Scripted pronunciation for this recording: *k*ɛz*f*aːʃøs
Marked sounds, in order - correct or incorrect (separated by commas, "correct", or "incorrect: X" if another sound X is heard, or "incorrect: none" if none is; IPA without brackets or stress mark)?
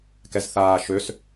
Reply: correct, incorrect: θ